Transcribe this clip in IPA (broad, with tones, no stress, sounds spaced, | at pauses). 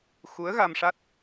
x u˧˥ ə̯ ɣ a˧ m ʂ a˦˥ t̚